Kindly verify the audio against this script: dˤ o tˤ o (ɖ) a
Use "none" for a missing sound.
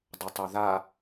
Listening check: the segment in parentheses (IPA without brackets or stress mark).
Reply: ð